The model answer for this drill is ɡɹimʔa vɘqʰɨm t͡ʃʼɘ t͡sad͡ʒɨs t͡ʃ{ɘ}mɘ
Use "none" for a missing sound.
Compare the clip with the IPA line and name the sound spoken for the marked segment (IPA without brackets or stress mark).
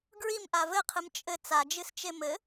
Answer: e